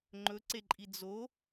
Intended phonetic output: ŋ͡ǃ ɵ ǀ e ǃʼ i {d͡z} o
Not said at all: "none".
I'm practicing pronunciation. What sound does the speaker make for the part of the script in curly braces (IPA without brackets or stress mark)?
d͡z